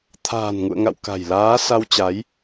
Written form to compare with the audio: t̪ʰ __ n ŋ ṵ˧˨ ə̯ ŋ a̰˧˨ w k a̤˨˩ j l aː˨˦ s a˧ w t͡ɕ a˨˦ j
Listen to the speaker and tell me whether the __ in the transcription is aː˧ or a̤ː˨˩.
a̤ː˨˩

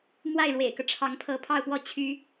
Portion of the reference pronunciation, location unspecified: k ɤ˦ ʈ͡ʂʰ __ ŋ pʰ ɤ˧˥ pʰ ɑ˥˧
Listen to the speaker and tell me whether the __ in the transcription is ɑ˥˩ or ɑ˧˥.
ɑ˧˥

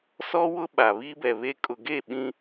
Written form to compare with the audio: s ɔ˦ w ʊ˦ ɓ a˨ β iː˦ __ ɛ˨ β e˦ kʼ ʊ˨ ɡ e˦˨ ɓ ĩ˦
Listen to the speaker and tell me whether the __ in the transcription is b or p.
b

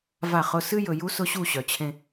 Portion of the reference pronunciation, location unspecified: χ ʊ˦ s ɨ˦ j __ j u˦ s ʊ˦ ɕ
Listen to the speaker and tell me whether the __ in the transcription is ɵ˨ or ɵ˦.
ɵ˨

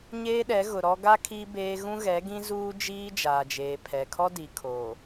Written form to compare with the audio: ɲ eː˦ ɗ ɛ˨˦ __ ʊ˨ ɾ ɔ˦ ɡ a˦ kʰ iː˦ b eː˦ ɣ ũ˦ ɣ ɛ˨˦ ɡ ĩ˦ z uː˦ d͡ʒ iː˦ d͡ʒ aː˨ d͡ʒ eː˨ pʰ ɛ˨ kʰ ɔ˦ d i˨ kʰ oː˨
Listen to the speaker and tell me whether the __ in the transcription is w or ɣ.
ɣ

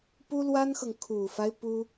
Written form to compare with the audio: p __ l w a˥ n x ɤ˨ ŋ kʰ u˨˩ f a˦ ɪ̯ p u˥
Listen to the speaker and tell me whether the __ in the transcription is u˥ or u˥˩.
u˥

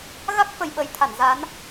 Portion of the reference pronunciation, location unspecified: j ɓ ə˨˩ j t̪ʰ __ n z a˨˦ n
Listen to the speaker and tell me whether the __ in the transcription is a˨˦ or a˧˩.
a˧˩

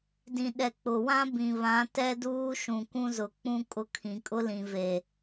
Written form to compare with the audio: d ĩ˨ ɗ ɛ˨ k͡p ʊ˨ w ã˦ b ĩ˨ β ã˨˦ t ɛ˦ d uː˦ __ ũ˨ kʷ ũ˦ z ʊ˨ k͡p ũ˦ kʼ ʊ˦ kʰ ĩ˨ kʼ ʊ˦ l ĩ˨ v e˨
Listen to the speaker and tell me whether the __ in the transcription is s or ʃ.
ʃ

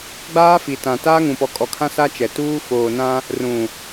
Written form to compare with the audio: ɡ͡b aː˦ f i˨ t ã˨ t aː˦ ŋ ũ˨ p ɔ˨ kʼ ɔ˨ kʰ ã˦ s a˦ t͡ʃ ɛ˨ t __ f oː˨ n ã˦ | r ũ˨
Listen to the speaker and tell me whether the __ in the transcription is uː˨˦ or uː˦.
uː˦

